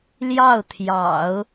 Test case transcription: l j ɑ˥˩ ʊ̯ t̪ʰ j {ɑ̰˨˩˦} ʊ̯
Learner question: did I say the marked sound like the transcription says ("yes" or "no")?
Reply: yes